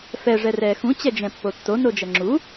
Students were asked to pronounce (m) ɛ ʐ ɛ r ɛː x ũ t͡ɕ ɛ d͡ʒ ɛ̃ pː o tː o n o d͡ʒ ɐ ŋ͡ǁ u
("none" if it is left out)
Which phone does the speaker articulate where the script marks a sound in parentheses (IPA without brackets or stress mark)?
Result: f